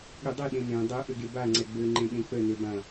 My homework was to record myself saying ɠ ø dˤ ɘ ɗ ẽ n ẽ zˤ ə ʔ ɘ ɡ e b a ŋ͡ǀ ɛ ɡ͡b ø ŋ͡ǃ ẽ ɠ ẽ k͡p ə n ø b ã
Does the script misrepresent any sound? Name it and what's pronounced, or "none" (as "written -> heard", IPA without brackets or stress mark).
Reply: zˤ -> dˤ